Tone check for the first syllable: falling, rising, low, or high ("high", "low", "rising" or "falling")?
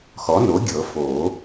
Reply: rising